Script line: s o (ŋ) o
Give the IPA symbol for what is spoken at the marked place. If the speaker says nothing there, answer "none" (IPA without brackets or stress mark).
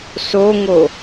ŋ